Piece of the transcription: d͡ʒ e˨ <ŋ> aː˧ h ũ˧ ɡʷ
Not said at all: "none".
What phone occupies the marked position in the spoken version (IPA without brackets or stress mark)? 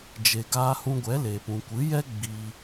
ɡ